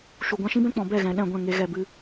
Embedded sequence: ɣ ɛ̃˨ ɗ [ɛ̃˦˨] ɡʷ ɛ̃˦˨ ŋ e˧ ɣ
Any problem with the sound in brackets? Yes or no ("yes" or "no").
no